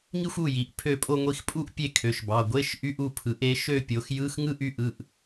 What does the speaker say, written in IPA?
ŋ i˥˧ xʷ u˥˩ j i˩˧˩ ʔ pʰ ø˥˩ pʼ o˥˧ ŋʷ i˧ x pʼ u˥˧ ʔ pʲ e˥˧ kʰ ø˩˧˩ ʃ b ɑ˩˧˩ ɡʷ e˧˥˧ ʃ ʔ y˧˥˧ ʔ u˥˩ pʰ ɯ˩˥ ʔ e˩˥ ʃ ø˥˧ pʲ o˩˥ x j ɯ˧˥˧ x ŋ ɯ˥˧ ʔ y˥˩ ʔ ɯ˩˧˩ ʔ

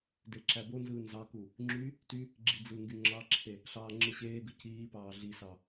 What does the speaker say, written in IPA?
d e ǁ æ b o n z ɯː n z ɑ k u | ŋ͡ǁ y | t y | ɡ͡ǁ i d͡z ɯ ŋ ɡ y ŋ͡ǁ ɑ ǁʰ e | ɬ ɑː ŋ͡ǁ ɯ ɕ eː ɡ ɯ c iː p ɑː ɮ i s ɑ

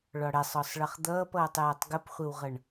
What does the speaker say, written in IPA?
ɭ ɒ ɽ ɛ sˤ ɒ sˤ ɭ ʌ χ d̪ ʌː p ʌː tˤ j æ tˤ ɡ ə p χʷ ə w ʁ ʌ ɳ

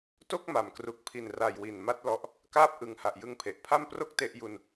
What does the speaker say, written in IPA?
t o˥˩ k̚ m a˨˩ m k r u˨˩ k̚ pʰ i˨˩ n r a˨˩ j w i˨˩ n m a˦˥ t̚ l ɔ˦˥ ʔ | k aː˦˥ p̚ ʔ ɯ˨˩ ŋ h a˨˩ ʔ j ɯ˧ ŋ pʰ e˨˩ ʔ pʰ a˥˩ m p r o˦˥ k̚ t e˦˥ ʔ j u˧ n

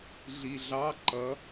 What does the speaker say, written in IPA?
ɮ i ɮ ɑ ǃ ʌ

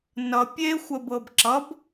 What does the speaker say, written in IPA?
n ʌ pʲ e xʷ ə b ɤ b ǁ ʌ b

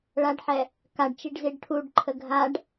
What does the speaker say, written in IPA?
ɭ a ɖ ħ ɛ | k a ɖ t͡ʃ i ɖ z i ɖ ʈʰ u ɖ ǃʰ ə ɡʱ a ɖ

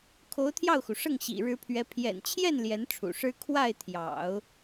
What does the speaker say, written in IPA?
kʰ o˧˥ ʊ̯ t̪ʰ j ɑ˥˩ ʊ̯ x u˩ ʂ ɤ˥˩ ŋ ɕ ḭ˨˩ ɻ ɻ̩˧˥ pʰ ɥ ɛ˧˥ pʰ j ɛ̰˨˩ n t͡ɕʰ j ɛ˥˩ n l j ɛ˧˥ n ʈ͡ʂʰ ṵ˨˩ ʂ ɻ̩˥ kʰ w a˥˩ ɪ̯ t̪ʰ j ɑ̰˨˩˦ ʊ̯

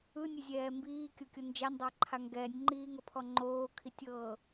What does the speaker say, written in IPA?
ɯ nʲ e zʲ ɛː m b iː kʲ o kʲ o n d͡ʒ a nʲ dˤ a ǃʰ a ŋ ɡ ɛː nʲ ŋ͡ǃ iː ŋ ɤ pʰ ɔ ŋ͡ǃ oː kʰ i tʲ ɤː

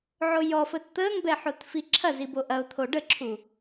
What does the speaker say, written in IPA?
ʕ o j ɔ f əː t t̪ əː ŋ b ɛ ħ o t f i ǁʰ ɐ z i b o ʔ ɐ ʊ̯ t̪ʰ o ɖ ə ǁʰ u

